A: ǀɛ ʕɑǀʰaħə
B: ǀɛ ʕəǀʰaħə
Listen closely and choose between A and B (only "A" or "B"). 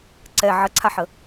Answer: B